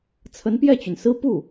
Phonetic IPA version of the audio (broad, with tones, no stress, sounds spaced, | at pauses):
t͡sʰ ə˧˥ n p j ɛ˥˩ t͡ɕ y˩ n s ɹ̩˥ p u˥˩